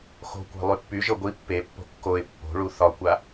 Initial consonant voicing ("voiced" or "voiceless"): voiceless